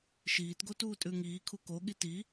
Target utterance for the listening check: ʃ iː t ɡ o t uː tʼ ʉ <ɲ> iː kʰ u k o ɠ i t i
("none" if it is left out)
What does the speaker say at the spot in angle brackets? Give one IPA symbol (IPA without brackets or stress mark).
ŋ